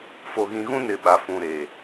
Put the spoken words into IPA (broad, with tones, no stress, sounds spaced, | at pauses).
f o˨ ɣ ĩ˨ ɣ ũ˦ n ɪ˨ ɓ a˨ f ũ˨ ɾ e˨